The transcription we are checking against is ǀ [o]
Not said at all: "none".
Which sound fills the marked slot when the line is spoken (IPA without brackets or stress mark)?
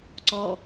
ɔ